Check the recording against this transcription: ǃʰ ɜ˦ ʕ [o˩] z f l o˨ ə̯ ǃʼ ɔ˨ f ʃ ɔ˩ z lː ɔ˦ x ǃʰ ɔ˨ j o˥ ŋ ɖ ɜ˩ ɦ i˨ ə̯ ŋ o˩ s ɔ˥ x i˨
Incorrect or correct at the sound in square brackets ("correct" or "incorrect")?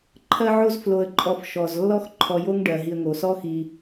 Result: incorrect